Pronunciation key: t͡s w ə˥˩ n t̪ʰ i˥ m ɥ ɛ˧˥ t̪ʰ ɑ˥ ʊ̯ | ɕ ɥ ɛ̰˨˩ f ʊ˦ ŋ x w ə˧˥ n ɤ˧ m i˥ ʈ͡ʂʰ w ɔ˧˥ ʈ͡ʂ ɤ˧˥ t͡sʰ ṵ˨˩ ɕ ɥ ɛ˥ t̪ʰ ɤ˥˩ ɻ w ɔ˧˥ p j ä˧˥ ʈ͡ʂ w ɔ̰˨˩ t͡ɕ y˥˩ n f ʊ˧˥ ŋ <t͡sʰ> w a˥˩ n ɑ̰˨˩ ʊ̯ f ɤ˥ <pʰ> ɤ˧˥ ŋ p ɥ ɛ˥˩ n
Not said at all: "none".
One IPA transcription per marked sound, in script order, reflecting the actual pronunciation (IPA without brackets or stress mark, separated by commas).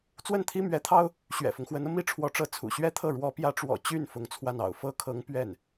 t͡sʰ, kʰ